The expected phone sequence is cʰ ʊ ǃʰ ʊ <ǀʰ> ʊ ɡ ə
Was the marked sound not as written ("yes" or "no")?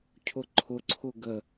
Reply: no